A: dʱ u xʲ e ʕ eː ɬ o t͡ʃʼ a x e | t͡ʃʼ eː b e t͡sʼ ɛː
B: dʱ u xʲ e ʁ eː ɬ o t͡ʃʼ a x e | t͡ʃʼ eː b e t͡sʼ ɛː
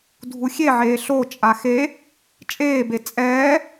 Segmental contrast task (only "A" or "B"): A